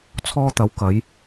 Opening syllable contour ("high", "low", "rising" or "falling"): high